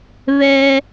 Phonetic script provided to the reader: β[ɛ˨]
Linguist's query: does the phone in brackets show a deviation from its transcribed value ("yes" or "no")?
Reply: yes